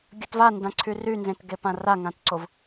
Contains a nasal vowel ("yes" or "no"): yes